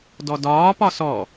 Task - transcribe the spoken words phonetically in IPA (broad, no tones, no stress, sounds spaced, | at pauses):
d ɔ d ɒː p ɒ s ɔ